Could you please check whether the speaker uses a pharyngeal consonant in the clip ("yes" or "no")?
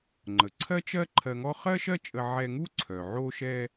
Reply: yes